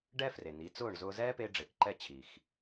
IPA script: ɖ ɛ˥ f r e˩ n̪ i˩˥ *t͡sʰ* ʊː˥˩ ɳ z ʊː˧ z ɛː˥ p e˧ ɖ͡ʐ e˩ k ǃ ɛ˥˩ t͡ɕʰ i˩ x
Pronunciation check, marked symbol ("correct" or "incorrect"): incorrect